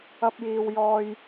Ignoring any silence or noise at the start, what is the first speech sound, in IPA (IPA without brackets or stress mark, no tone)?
ɐ